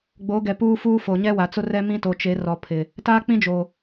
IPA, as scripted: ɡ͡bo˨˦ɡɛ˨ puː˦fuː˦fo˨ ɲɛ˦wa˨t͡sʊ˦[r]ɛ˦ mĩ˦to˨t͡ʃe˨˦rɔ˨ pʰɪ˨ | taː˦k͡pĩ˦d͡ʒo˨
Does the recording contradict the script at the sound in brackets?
no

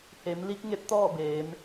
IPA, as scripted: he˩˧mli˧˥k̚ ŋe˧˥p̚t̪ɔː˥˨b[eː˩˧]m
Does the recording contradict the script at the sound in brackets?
no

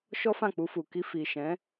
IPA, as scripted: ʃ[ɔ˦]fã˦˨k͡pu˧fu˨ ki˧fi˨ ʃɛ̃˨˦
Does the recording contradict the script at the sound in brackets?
no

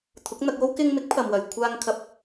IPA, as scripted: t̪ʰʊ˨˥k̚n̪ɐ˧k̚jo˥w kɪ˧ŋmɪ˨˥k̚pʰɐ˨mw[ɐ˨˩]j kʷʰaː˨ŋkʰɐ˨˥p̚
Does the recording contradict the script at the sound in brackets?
no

